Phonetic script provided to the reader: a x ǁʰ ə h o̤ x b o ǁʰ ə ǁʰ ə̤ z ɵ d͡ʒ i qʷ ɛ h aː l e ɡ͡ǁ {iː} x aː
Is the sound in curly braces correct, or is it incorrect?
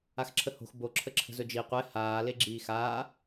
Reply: correct